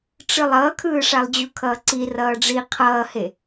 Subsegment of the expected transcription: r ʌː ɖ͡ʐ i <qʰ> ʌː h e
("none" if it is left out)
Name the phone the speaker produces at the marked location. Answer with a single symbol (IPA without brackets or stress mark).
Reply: qʰ